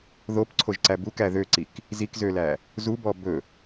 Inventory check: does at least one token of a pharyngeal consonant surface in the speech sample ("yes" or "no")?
no